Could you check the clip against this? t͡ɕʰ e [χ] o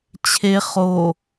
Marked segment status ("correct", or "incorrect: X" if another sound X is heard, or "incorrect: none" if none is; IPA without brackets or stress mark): correct